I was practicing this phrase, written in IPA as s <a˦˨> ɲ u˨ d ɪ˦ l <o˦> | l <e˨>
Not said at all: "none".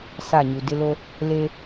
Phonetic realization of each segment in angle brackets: a˦˨, o˦, e˦

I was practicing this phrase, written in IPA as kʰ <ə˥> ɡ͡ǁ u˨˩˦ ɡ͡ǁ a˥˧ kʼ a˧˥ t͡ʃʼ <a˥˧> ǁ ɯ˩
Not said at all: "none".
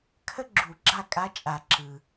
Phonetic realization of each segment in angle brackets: ə˥, a˨˩˦

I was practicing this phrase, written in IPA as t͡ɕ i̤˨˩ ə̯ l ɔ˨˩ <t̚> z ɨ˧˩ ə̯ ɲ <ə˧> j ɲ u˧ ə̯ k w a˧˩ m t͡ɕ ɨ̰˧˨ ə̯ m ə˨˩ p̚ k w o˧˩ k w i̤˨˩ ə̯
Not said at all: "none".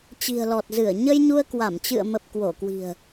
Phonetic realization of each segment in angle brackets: t̚, ə˧

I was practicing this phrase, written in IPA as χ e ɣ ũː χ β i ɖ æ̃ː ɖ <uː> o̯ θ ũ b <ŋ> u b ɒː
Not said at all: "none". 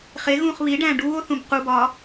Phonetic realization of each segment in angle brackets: uː, q

